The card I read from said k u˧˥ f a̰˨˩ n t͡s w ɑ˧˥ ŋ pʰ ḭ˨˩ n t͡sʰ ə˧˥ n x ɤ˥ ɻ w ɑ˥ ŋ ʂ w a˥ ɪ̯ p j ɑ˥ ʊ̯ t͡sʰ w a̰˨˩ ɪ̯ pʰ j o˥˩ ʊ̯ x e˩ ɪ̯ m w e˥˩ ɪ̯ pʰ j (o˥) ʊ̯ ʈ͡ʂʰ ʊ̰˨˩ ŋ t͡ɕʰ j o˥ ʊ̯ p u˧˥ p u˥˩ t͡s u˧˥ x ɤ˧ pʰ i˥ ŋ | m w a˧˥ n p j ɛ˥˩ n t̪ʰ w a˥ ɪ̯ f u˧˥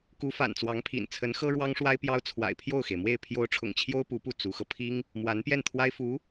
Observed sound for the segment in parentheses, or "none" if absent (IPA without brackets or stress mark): o˧˥